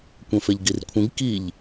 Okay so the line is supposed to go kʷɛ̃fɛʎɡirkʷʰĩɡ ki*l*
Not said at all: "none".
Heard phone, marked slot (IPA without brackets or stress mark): ʎ